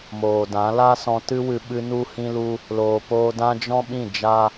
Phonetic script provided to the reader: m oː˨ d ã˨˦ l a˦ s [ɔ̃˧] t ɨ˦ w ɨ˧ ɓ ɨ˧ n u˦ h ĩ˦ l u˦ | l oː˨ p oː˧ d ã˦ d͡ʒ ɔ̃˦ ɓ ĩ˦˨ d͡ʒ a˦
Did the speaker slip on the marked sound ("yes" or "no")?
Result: no